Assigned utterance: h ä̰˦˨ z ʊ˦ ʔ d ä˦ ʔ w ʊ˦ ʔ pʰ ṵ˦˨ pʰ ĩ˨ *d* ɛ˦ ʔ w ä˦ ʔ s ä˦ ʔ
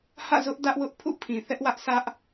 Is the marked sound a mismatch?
yes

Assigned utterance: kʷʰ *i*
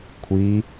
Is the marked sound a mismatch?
no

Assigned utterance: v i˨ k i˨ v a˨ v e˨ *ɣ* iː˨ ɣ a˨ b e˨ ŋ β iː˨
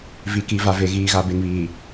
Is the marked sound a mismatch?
no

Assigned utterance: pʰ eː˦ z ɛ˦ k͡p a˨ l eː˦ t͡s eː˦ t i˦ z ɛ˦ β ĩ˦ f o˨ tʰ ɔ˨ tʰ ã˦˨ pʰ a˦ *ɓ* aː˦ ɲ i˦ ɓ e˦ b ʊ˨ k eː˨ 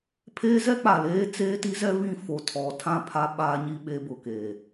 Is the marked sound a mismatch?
no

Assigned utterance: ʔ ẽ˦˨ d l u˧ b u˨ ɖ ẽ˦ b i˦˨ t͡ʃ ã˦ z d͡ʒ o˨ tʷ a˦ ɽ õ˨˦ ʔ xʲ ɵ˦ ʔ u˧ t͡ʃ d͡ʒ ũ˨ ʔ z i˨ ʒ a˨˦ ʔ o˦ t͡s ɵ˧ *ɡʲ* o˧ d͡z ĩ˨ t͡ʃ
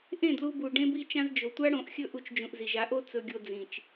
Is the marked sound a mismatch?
no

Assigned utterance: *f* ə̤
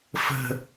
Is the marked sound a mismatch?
no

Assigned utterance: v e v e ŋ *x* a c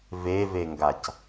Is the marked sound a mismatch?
yes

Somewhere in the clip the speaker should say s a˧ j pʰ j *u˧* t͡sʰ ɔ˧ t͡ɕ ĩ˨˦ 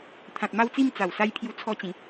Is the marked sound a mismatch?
no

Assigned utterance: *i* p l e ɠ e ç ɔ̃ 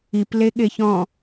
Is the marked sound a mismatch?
no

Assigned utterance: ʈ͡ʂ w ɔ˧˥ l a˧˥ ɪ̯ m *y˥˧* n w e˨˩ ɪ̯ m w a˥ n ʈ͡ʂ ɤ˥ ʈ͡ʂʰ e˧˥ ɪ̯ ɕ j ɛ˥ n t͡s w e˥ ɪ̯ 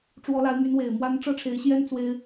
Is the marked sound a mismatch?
yes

